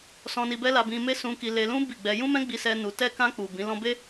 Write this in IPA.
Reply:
s ɔ̃˧ n i˧ b ɛ˦ l a˧ b ĩ˧ m e˦ s ũ˧ k i˧ l e˧ l ũ˦ b i˦˨ ɡ͡b ɛ˧ j ũ˦ m ɛ̃˦ ɡ͡b i˧ s ɛ˧ n u˧ t ɛ˧ k ã˧ k͡p u˨ b ĩ˨˦ l ɔ̃˦ b e˦

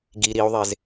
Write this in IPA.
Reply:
ɡ i ɾ i u̯ ðˤ e z

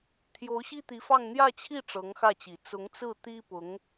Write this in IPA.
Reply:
t̪ʰ j o˧˥ ʊ̯ ɕ i˥ t̪ i˧˥ f ɑ˥˧ ŋ n̪ j ä˥˧ t͡ɕʰ i˥˩ ʈ͡ʂ ɤ˧˥ ŋ x ä˥˩ t͡ɕ i˨˩ t͡s ʊ˧˥ ŋ t͡s ɹ̩˥˩ t̪ i˥ p ʊ˧˥ ŋ

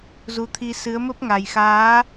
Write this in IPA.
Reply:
z u˨˦ t̪ʰ i˧ s ɨ˨˦ ə̯ m ə˦˥ p̚ ŋ a˨˩ j x aː˨˦

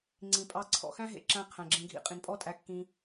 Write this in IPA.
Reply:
ŋ͡ǀ ĩ˨ pʼ ɑ˧ ǀʰ ɔ̰˨ x æ̃˦ ɦ ḛ˧ ǁ æ̃˧ qʰ æ̃˨ ɡ͡ǁ ẽ˧ ɡʱ ḭ˧ qʼ ĩ˨ n pʼ ɔ˦ tʼ æ˧ kː ĩ˧

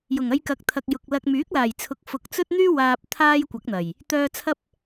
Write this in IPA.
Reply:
j ʊ˨˩ ŋ ɐ˧ j k ɐ˨˥ k̚ t̪ʰ ɐ˨ k̚ j ʊ˨ k̚ l ɐ˧ k̚ m yː˨˥ k̚ l aː˨˩ j t͡sʰ ʊ˨ k̚ f ʊ˨ k̚ t͡s ɵ˥ t̚ n̪ yː˥ w aː˨ p̚ t̪ʰ aː˧ j kʷ ɐ˨˥ k̚ n̪ ɐ˨˩ j | t̪ œː˧ t͡sʰ ɐ˥ p̚

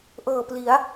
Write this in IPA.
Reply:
ʔ ɤː˨˩ p l i˩˦ a̯

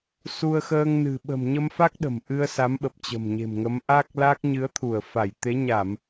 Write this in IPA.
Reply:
s u˧ ə̯ x əː˧ ŋ n ɨ̤˨˩ ɓ ə̤˨˩ m ɲ ə˧ m f a˦˥ k̚ ɗ ə̤˨˩ m ʔ ɨ˧ ə̯ s a˨˦ m ɓ ə˨˩ p̚ t͡ɕ ə̤˨˩ m ɲ e̤˨˩ m ŋ ə˨˦ m ʔ a˦˥ k̚ l a˦˥ k̚ ɲ ɨ˨˦ ə̯ t̪ʰ u˧˩ ə̯ f a˧˩ j t̪ e˨˦ ɲ a˧˩˨ m

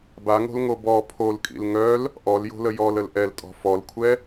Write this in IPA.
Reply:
b a ŋ o̤ l ŋ o b ɔ pʰ o l kʼ ḭ l ŋ œ l | ʔ ɔ l j o̤ l ə j ɔ l ə l ʔ ɛ l tʼ ɔ̤ f ɔ l kʷʰ ɛ

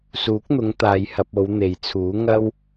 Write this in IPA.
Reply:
s uː˨˥ k̚ n̪ ʊ˨˧ ŋ t̪ aː˧ j h ɐ˧ p̚ o˨˧ w n̪ e˨ j t͡sʰ uː˨˥ ŋ ɐ˥ w

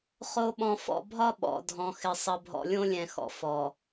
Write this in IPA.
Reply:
χ o˨ ɓ ɔ̃˨ f ɔ̰˨ bʱ ɒ˦ ɓ ɔ̰˨ dʱ ɔ̃˨ x ɪ˨ sˤ ə˨ bʱ ɔ̰˨ lʲ õ˦ lʲ ɛ̃˨ x ɔ̰˨ f ɔ˨

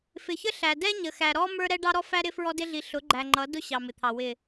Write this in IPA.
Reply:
f ɪ˨ ç ə˦ ɬ æ˨ d ɛ˦ ɲ ə˨ x æ˨ ɾ ɔ˦ m ə˞˦ ɾ ɛ˦ ɖ ɑ˦ ɾ ɔ˦ f æ˦ ɾ ɪ˦ f ɹ ɔ˦ d ɪ˦ ɮ i˨ ɬ ʊ˨˦ ɡ͡ǃ æ˨ ŋ͡ǃ ʌ˨˦ d ʊ˦ ɕ ɑ˨ m ɪ˨ t̪ʰ ɑ˨ w ɪ˨

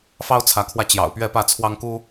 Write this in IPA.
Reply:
f ɑ˦ ʊ̯ t͡sʰ ä˨˦ kʰ w ä˧ t͡ɕ j ɑ̰˨˩ ʊ̯ p ɥ ɛ˥˨ p ä˥˨ t͡sʰ w ɑ˦ ŋ k u˦

